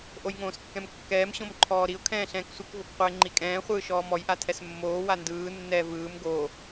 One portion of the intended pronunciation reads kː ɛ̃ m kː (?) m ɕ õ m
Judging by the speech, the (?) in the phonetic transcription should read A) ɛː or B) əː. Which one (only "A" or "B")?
A